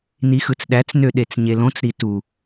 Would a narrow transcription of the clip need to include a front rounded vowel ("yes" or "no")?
yes